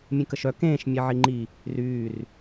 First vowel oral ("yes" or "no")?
no